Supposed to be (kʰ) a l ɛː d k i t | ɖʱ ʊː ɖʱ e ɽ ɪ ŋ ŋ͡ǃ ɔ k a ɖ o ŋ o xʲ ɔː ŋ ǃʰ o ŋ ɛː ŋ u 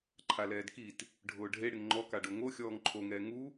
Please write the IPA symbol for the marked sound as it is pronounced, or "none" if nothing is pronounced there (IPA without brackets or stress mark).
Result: ǃʰ